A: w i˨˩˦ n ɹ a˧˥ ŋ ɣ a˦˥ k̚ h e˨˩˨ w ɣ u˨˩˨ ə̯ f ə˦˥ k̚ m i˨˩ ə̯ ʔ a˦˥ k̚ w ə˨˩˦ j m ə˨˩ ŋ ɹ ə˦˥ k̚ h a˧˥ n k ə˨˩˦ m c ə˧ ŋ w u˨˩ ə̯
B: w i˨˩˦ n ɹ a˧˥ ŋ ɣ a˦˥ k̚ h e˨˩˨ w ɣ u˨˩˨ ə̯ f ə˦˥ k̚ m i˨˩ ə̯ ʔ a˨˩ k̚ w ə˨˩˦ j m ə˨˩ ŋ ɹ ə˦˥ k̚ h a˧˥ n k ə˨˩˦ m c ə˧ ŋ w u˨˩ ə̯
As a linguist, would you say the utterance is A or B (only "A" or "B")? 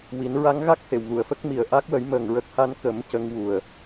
A